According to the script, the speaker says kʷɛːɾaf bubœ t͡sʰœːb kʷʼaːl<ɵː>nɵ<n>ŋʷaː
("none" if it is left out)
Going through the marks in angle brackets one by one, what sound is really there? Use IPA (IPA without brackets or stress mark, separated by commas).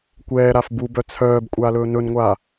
ɵː, n